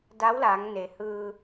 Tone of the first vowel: rising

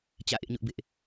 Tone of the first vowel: falling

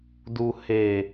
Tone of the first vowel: low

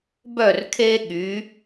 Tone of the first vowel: falling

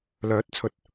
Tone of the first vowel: rising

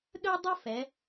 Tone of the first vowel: high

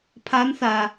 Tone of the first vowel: rising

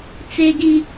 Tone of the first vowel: high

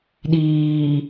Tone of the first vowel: low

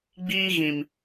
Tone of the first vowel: high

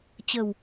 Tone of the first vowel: low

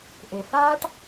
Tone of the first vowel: low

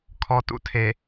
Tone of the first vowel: low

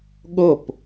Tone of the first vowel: falling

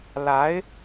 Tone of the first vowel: rising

